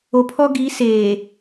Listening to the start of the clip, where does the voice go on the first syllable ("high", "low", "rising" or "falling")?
low